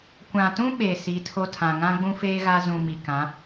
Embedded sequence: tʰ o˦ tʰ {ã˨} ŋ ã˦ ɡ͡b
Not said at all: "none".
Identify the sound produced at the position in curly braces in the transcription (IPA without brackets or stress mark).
ã˨